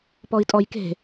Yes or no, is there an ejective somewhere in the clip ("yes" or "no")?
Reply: yes